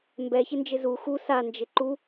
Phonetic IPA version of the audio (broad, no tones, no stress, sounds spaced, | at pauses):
m b ɛ ç ɪ n d͡ʒ ɪ z u x u s a n d͡ʒ ɪ ǃ u